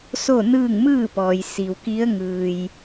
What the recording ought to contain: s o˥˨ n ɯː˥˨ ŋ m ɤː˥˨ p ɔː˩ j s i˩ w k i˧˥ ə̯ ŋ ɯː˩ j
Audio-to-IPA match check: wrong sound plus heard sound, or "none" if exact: ɤː˥˨ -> ɯː˥˨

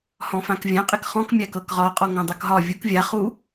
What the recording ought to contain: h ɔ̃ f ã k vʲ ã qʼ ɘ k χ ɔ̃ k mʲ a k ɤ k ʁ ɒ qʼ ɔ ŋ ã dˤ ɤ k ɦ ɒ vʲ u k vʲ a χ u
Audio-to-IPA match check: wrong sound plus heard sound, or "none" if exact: none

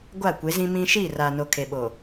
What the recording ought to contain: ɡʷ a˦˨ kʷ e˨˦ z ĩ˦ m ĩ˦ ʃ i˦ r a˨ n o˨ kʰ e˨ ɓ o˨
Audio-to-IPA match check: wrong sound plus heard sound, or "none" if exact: i˦ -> i˦˨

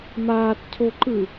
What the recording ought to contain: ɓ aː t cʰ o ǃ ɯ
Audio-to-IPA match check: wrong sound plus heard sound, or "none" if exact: ɓ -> m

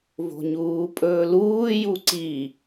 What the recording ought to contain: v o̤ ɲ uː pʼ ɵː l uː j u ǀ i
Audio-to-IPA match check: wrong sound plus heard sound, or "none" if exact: none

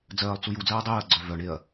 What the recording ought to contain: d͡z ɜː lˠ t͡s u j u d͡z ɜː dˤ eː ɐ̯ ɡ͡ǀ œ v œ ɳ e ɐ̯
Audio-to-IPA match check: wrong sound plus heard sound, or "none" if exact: none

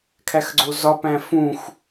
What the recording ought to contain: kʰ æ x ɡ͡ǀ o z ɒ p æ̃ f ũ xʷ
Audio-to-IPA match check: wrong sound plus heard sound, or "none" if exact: none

